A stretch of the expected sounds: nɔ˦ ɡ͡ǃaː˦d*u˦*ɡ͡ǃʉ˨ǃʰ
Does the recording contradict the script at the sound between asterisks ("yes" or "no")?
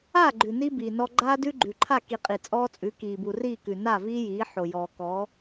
yes